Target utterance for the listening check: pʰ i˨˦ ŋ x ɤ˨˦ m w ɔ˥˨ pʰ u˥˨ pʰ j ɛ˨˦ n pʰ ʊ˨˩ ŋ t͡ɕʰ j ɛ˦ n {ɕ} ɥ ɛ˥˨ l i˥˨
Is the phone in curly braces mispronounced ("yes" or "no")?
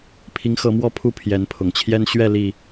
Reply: no